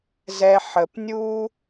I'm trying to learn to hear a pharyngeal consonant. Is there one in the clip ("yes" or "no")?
yes